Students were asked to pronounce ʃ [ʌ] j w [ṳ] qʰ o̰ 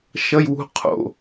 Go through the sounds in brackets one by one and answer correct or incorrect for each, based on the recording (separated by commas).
correct, correct